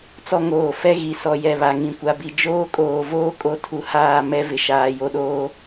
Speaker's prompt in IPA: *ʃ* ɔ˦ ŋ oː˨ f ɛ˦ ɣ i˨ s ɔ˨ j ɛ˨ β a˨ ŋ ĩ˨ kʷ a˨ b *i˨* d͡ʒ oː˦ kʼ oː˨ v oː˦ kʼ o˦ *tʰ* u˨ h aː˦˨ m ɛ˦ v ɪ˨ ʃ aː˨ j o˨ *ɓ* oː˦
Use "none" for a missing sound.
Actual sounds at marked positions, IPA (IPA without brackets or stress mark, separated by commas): t͡s, i˨, tʰ, ɗ